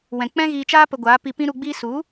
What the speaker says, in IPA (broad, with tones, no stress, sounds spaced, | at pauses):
w ɛ̃˨ k͡p ɛ̃˦ ɣ iː˧ t͡ʃ aː˦ p ə˧ ɡʷ aː˨˦ p i˧ p ĩ˦ ɾ u˧ ɡ͡b iː˦ s u˨˦